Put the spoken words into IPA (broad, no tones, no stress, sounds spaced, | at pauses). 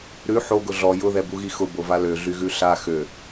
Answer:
ɾ ʉ ħ o ɡ ʊ ɮ ɔ j ʊ ð ɛ b u ɣ i x ʊ b o v a l ø ɮ y ɣ ʉ ɬ a x ø